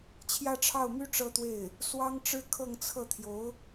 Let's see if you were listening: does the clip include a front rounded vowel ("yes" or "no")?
yes